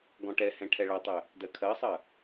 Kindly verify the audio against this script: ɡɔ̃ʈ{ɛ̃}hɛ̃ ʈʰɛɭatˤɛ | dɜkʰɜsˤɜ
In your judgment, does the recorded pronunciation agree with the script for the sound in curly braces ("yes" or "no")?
no